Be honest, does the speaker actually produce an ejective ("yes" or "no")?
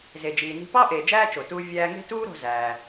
no